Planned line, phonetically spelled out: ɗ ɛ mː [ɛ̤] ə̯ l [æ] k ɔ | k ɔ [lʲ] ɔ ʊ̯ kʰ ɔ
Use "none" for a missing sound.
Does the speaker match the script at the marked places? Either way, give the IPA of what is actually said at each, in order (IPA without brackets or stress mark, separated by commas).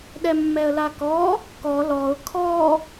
ɛ, a, l